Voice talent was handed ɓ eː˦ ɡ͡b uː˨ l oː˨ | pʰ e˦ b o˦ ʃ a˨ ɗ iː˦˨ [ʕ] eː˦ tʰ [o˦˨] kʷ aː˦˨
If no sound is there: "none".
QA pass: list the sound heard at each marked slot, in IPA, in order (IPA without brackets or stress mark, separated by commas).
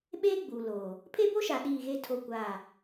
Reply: ɣ, o˦˨